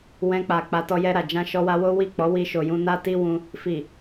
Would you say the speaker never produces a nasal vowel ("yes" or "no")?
no